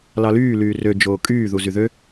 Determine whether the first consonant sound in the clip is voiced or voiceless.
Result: voiced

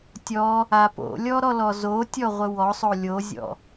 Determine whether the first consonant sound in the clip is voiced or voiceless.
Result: voiceless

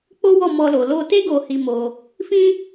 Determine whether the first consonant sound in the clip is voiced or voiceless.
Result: voiceless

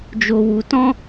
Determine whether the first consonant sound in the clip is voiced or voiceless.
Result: voiced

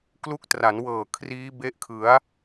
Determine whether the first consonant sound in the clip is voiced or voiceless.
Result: voiceless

